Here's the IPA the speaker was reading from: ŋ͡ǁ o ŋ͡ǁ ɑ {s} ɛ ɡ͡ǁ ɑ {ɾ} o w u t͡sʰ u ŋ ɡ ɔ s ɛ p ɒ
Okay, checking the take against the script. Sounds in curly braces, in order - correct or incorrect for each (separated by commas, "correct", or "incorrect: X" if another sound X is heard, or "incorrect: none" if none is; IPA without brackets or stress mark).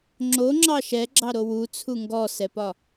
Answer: incorrect: ʃ, correct